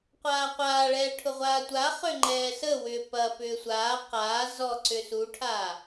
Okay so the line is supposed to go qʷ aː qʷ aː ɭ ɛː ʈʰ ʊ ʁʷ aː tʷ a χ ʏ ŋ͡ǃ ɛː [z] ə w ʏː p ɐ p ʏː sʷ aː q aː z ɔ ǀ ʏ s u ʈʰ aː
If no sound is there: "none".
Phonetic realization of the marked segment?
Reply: s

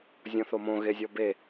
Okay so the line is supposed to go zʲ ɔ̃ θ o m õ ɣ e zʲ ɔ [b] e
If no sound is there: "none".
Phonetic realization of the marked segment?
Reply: b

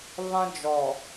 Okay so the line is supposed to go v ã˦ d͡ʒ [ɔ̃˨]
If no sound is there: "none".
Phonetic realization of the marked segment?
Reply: ɔ˨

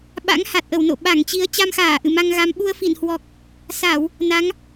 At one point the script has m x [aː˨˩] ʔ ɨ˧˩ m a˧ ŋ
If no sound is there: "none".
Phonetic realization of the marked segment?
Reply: aː˧˩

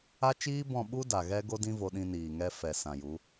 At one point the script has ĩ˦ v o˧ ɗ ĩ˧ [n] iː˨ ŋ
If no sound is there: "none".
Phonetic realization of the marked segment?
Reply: n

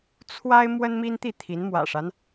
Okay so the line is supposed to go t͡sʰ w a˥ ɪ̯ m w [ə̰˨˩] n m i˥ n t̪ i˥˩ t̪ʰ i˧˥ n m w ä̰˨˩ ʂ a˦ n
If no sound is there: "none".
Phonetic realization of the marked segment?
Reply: ə˥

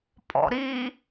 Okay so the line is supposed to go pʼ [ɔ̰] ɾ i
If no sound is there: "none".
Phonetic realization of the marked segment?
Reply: ɔ̰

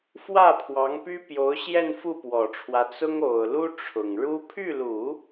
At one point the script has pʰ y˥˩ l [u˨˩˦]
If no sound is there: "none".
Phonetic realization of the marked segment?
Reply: u˨˩˦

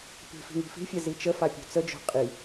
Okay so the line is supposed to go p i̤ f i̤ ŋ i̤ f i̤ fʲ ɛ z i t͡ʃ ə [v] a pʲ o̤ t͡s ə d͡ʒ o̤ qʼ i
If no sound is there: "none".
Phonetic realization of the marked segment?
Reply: f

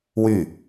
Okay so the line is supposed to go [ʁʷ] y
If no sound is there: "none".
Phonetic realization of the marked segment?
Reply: w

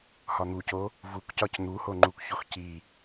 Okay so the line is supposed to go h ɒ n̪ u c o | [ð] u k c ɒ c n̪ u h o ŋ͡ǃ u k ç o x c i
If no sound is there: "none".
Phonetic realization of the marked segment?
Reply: v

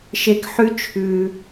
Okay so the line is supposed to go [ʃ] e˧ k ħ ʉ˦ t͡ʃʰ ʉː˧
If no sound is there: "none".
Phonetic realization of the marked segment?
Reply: ʃ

